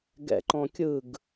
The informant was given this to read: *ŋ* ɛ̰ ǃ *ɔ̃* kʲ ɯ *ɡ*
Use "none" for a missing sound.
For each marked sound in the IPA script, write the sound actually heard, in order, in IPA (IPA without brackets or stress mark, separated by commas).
ɡ, ɔ̃, ɡ